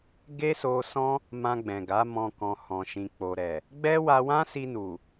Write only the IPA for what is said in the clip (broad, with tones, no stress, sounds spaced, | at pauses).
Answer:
ɡ e˦ s o˧ s ɔ̃˦ | m ã˧ ɡ͡b ɛ̃˨ ɡ a˨˦ m ɔ̃˧ k ɔ̃˧ h ɔ̃˧ ʃ ĩ˧ k͡p o˨ ɾ ɛ˨ | ɡ͡b ɛ˦ w a˧ w ã˦ s i˧ n u˨